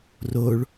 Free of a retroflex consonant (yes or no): no